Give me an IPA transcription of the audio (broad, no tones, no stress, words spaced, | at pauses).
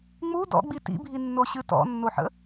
ŋ͡mu dɔ̰ɡ͡bi tḭbʱinːoɕɨ tɔ̰nːoħə̰